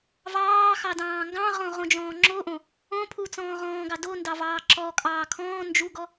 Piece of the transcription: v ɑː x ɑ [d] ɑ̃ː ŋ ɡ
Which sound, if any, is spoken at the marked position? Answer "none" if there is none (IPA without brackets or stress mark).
d